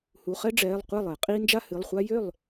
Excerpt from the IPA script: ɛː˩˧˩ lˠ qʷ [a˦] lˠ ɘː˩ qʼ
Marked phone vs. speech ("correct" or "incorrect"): incorrect